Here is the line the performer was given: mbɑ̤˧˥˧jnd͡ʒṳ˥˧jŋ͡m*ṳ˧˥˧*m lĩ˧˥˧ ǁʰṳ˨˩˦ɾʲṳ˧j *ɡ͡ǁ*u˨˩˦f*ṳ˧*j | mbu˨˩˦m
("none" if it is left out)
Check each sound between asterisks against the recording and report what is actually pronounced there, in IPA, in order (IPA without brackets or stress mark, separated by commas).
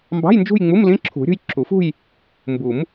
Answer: u˧˥˧, ǁʰ, ṳ˥˧